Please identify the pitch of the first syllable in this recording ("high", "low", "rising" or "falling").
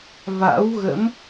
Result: rising